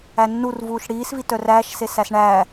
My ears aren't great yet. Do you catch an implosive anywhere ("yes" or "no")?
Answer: no